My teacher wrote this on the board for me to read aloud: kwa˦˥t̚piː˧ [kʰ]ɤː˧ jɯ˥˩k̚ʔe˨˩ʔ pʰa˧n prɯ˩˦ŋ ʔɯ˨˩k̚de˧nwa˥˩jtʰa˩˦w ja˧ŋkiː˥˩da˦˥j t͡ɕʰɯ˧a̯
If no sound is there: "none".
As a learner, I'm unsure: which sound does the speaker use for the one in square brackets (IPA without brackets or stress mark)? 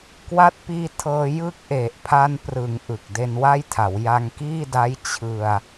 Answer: tʰ